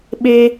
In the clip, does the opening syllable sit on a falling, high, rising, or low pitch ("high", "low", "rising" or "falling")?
high